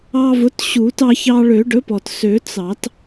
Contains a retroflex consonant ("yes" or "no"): yes